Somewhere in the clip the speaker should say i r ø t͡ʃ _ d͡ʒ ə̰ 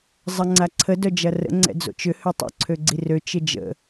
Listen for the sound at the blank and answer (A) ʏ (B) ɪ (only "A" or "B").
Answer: B